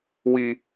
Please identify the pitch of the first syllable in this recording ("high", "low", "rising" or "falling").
high